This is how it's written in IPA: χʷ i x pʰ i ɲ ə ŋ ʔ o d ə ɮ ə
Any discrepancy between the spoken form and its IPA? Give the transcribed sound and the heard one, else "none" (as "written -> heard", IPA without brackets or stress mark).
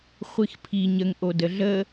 none